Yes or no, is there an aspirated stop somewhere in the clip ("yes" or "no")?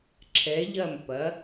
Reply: yes